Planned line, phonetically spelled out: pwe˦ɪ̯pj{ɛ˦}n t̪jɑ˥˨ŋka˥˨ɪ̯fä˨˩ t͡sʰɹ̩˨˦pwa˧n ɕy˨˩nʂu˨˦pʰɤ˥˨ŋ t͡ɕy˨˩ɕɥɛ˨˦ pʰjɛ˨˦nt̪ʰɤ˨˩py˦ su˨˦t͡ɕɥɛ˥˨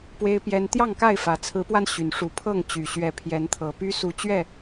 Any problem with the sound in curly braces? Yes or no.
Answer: no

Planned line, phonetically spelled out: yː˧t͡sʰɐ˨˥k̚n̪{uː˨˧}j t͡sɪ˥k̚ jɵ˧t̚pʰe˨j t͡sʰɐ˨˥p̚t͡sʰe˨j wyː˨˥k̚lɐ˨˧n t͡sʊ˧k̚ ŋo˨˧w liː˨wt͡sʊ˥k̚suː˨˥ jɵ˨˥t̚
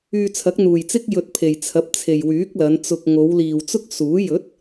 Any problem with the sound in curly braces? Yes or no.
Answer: yes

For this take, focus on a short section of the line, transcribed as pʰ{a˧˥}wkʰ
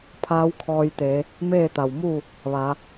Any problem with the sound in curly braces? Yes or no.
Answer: yes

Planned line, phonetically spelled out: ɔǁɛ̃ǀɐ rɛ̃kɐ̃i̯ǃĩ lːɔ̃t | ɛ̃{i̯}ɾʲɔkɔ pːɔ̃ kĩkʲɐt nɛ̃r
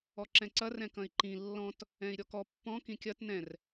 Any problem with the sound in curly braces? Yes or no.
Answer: no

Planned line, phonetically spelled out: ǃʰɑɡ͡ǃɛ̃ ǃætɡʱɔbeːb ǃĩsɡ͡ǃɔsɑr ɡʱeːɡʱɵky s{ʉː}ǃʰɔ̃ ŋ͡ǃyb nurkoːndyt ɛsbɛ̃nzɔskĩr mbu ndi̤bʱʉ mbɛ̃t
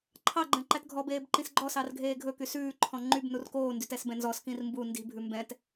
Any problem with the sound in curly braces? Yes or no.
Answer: no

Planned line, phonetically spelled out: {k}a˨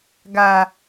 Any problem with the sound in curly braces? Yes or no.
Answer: yes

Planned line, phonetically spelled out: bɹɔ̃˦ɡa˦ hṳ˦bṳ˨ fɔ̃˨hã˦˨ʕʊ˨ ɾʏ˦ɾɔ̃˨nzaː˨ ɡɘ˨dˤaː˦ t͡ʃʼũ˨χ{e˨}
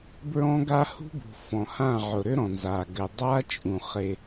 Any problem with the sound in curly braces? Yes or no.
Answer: no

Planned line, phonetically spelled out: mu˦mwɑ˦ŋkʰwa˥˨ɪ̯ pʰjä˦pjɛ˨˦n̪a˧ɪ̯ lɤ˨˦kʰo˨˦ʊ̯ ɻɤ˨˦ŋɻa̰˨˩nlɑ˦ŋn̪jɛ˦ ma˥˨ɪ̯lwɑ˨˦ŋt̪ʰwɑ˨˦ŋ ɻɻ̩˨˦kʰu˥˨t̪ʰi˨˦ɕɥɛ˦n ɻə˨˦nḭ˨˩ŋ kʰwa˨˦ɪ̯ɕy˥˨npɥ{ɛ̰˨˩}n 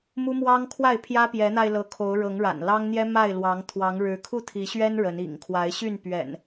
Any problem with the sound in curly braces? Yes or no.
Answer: no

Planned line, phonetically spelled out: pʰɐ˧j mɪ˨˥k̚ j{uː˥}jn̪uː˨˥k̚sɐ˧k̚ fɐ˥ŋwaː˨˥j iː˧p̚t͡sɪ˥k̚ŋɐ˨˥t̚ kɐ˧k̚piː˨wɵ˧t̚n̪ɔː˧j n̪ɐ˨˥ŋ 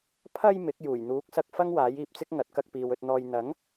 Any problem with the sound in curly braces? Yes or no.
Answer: yes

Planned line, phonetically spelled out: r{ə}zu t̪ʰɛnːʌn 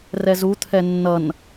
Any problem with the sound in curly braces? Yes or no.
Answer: yes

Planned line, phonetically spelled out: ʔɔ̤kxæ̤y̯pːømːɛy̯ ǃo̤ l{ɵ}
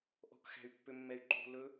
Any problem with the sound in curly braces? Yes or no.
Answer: no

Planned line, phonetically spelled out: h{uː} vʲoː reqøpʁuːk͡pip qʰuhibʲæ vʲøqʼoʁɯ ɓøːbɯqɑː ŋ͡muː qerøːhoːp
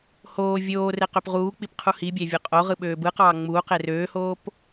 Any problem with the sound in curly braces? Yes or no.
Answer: yes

